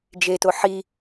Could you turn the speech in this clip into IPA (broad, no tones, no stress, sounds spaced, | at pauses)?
d͡ʒ e t o ħ i